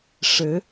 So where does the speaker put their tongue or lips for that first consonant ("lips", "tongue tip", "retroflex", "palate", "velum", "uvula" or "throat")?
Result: retroflex